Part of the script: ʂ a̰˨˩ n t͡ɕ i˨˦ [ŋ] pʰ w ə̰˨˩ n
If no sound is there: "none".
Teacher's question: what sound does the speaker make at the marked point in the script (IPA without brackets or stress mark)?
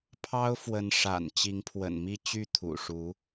ŋ